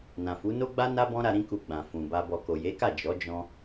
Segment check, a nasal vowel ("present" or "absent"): present